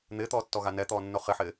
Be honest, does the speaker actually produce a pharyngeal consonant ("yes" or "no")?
yes